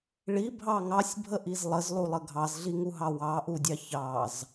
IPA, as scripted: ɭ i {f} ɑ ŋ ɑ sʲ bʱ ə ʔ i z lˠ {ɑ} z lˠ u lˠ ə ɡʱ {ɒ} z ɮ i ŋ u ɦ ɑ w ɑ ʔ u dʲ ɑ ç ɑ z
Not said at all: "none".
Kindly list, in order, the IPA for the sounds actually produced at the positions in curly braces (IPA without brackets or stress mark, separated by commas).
bʱ, ə, ɑ